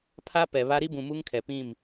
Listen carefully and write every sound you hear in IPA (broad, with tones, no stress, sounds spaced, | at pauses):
pʰ a˦ p ɛ˨ β a˦ ɾ i˦ b ũ˨ m u˦ ŋ kʰ ɛ˨ p ĩ˦˨ m